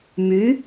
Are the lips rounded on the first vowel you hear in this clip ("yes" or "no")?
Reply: yes